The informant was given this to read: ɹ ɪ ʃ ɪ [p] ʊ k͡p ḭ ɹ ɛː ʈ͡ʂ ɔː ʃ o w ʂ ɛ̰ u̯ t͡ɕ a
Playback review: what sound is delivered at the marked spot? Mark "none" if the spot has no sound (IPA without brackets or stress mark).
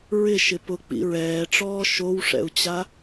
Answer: p